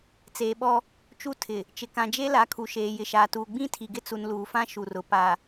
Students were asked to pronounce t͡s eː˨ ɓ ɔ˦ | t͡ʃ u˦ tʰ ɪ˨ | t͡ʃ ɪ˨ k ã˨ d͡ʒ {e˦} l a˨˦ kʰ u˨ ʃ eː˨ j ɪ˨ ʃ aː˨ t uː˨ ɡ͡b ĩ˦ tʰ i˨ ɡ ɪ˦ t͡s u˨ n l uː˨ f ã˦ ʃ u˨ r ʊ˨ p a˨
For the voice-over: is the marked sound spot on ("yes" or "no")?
yes